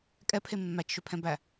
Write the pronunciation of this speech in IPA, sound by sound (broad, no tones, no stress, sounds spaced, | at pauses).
kʼ ɛ pʰ e mː æ t͡ʃ ʃ ø pʰ ɛ̃ b æ